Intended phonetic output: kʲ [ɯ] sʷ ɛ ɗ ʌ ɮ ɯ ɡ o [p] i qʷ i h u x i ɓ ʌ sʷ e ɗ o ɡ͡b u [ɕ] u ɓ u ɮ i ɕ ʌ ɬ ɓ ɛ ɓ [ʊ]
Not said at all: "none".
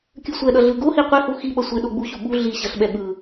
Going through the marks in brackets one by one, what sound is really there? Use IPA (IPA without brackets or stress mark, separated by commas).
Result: ɯ, h, ɕ, ɯ